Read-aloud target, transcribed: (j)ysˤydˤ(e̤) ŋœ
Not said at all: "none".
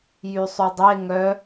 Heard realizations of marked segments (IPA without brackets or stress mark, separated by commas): j, e